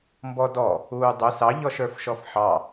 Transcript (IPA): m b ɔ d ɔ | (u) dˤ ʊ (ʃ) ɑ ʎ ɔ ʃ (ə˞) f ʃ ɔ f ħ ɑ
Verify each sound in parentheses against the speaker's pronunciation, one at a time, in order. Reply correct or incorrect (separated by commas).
incorrect, incorrect, correct